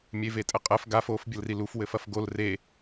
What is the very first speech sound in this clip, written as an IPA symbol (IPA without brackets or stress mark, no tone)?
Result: mʲ